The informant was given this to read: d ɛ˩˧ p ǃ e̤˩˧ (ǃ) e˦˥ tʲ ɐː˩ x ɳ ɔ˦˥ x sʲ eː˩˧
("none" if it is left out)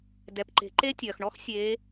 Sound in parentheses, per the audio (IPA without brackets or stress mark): ǃ